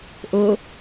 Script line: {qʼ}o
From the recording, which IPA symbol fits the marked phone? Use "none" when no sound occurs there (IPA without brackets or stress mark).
ʔ